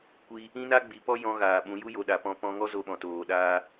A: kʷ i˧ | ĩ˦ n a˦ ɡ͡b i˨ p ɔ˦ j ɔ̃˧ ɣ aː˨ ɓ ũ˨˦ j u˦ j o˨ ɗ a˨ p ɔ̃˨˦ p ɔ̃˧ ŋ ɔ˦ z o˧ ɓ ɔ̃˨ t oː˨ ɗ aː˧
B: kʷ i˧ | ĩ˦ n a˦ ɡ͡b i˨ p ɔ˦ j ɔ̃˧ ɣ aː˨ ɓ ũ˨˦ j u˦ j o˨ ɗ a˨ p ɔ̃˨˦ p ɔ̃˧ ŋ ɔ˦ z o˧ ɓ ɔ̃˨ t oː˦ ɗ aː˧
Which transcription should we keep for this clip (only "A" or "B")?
A